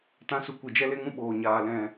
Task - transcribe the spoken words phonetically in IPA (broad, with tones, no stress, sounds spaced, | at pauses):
t ã˨˦ s u˨ kʷ i˨ d͡ʒ ɛ˧ l e˧ ŋ ũ˧ ɓ oː˨ ɲ aː˨ l ɛ̃˨